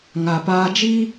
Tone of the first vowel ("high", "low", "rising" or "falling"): low